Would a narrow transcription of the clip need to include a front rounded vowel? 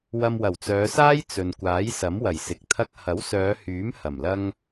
yes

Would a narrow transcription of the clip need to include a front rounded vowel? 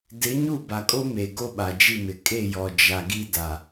no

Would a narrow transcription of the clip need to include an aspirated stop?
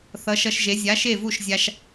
no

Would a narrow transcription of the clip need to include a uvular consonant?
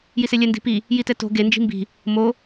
no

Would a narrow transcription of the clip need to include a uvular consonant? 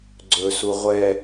yes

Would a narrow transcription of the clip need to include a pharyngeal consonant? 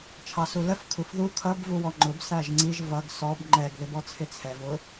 no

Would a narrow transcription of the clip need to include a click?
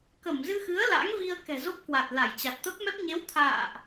no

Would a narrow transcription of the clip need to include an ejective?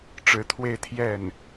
no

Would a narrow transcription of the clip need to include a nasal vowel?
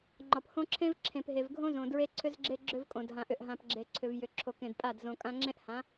yes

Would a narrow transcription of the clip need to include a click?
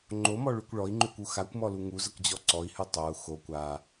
yes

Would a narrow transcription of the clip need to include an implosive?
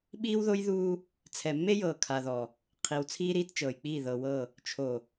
yes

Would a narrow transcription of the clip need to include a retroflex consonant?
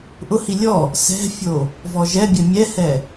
no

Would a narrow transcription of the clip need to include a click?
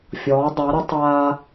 no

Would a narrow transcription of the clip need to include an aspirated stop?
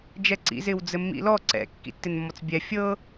no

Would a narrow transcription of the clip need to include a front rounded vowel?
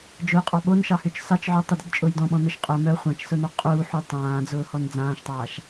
yes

